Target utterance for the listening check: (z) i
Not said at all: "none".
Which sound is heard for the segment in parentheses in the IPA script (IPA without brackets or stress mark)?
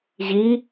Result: ʑ